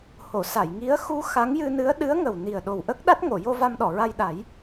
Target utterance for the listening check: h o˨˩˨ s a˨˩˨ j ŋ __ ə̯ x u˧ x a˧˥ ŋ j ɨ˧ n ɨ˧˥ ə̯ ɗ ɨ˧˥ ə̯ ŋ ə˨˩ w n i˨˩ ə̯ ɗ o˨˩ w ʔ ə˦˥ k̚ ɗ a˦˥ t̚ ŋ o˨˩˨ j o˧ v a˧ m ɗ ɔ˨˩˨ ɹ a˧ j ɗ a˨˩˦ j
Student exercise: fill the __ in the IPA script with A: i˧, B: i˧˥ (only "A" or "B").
B